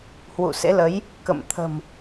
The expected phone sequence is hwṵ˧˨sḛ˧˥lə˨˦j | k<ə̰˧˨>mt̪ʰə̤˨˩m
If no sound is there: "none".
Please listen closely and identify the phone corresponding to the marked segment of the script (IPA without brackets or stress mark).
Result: ə̰˧˨